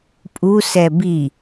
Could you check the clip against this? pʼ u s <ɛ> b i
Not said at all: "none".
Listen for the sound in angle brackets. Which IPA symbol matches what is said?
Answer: ɛ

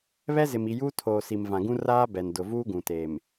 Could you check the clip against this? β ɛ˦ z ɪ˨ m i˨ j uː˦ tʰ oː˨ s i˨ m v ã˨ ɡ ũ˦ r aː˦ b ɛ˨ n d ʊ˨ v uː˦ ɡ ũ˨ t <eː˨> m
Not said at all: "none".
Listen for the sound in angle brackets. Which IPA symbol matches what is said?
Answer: eː˨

